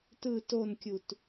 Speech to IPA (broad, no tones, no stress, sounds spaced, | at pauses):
t ɯ t o n kʲ u t